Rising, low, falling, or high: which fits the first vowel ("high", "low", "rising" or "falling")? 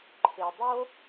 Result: low